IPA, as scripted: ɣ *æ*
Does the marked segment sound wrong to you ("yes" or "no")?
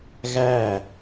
no